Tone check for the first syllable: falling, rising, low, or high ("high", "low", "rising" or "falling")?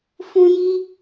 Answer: high